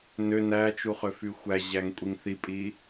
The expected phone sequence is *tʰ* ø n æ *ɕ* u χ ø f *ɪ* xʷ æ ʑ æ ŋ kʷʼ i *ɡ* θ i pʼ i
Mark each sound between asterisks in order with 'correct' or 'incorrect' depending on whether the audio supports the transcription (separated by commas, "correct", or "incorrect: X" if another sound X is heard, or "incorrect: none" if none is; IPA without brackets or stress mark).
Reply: incorrect: n, incorrect: t͡ʃ, incorrect: y, incorrect: ŋ